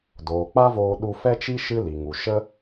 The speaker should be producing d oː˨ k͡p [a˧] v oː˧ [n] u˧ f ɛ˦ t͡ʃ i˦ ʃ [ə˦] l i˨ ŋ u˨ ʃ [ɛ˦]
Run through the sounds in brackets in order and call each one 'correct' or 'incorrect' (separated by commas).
incorrect, incorrect, incorrect, incorrect